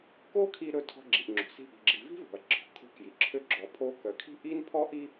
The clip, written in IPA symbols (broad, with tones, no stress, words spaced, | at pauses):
ko˥kʰi˧ ɾɵ˧ tʰɔ̤˧ɡ͡ǁi˩ʔ ŋ͡ǁo̤˩si̤˧ ʔi̤˩ɡ͡ǁi˩ vi̤˥vo̤˩ɐ̯ ǁʰɔ̤˩kʰo̤˧kji˩ ǁʰø˧ ɡ͡ǁɔ˩pʰo˧kœ˩kʰi̤˥ ʔi˥npʰɔ˥ʔi˥